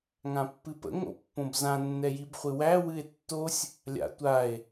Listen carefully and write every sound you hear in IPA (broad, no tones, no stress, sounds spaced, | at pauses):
ŋ ã pː ɨ p ə̰ ŋ o̰ pː õ b z ã nː ɛ j i b χʷ ɨ w æ w ɨ e̯ tː o sʲ | lʲ a̰ tʷ a e̯